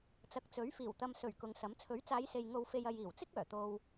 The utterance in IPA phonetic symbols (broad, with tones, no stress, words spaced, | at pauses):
t͡sɐ˨˥k̚t͡sɵ˨˥ɥfiː˨˩w t̪ɐ˨msɵ˨˩ɥ kʊ˨˧ŋsɐ˨˥m t͡sʰɵ˨˥ɥt͡saː˨˧jse˨j ŋo˨wfe˨j ɐ˨jiː˨˩wt͡sɪ˥k̚ œː˨˩t̪o˧w